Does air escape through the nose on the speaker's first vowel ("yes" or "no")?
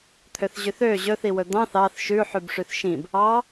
no